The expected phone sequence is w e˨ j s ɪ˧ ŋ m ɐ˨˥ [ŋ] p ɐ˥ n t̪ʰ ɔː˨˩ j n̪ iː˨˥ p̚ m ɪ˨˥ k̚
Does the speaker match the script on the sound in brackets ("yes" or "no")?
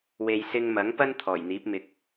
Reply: yes